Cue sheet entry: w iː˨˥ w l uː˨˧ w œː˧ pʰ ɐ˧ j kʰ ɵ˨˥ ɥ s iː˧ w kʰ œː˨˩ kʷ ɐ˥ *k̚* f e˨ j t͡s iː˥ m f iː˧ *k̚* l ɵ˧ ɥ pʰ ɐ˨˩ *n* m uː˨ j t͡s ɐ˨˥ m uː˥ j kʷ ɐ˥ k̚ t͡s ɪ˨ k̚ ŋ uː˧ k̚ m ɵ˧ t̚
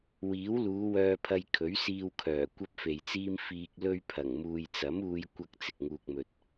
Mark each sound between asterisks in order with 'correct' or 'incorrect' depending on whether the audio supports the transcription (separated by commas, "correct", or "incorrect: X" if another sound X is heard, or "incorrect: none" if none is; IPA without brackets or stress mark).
incorrect: p̚, correct, incorrect: ŋ